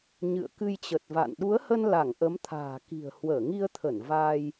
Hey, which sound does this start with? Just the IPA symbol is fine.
ɲ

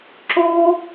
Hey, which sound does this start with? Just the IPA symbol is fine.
ǁ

